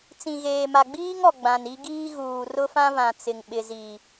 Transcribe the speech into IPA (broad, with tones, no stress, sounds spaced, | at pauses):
t͡s ĩ˨ ɣ eː˨ m a˨ ɡ͡b iː˦ ŋ ɔ˨ ɡ͡b ã˨ n i˦ ɡ iː˦ ɣ uː˨ r ʊ˦ f ã˦ β ã˨ t͡s ɪ˨ ŋ ɓ ɪ˨ z i˨